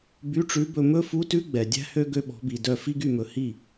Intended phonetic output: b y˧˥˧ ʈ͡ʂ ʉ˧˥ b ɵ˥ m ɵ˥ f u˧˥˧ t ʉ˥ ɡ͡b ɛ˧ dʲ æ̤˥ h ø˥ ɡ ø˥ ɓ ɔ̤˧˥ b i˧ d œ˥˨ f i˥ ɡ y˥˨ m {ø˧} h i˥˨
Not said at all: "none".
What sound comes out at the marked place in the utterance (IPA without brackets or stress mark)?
ɵ˧